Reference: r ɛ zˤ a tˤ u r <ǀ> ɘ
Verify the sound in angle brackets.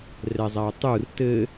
incorrect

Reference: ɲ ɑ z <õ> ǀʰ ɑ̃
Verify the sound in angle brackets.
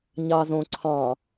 correct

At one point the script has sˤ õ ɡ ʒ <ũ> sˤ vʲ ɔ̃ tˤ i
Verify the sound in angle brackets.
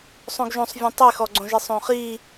incorrect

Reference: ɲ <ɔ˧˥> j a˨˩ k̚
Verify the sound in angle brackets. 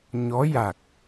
correct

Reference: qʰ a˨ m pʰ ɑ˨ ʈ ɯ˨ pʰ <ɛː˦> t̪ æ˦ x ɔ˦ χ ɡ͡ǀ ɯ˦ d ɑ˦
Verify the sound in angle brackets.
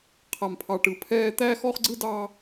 correct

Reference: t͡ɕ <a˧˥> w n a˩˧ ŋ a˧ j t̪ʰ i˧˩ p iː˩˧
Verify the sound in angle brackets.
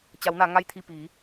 incorrect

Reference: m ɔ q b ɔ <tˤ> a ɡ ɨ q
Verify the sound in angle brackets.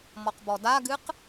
incorrect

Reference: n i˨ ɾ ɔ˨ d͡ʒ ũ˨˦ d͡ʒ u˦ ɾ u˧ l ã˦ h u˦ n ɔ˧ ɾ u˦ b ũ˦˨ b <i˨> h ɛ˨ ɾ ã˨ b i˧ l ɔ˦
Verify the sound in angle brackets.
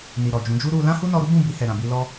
incorrect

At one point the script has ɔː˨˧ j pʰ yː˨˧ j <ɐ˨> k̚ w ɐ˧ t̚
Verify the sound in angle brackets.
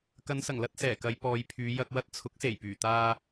incorrect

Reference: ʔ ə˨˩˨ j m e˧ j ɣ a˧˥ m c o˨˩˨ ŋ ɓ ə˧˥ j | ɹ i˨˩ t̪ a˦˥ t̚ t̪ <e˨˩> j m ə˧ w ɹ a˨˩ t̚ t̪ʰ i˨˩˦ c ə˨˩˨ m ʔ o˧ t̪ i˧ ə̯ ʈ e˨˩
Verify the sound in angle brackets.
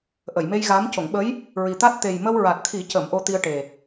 correct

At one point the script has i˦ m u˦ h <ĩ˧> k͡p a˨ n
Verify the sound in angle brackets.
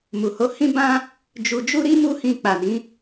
correct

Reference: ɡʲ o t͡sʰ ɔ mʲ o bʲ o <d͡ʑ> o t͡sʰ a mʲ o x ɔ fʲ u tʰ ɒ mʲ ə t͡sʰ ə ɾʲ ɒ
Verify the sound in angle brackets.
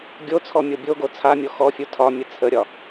incorrect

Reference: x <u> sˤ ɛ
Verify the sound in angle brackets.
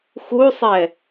correct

